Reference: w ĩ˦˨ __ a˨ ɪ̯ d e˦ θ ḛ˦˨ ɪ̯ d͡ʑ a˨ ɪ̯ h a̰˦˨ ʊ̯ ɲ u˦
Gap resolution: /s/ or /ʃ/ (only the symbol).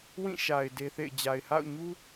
ʃ